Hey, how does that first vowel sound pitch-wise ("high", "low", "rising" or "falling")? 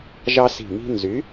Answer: high